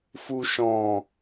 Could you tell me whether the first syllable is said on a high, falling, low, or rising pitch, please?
low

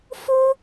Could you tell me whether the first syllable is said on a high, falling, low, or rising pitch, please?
high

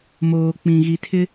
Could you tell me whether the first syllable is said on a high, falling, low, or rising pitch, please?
low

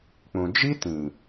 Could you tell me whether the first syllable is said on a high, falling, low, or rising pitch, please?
low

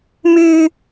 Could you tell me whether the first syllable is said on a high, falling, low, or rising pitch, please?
high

